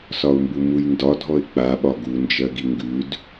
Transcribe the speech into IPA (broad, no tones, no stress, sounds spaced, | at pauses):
s ɒ ʊ̯ m b u m u j n d ɒ dʱ ɔ ɪ̯ k͡p a ɓ ɒ ɡ u n d͡ʒ ɜ ɡ i ŋ ɡ ʉ d